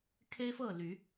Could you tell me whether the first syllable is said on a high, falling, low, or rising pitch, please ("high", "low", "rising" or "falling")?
high